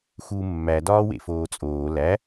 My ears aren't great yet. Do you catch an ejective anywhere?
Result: yes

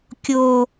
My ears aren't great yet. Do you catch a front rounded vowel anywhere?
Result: no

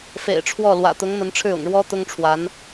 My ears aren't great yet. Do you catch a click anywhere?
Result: no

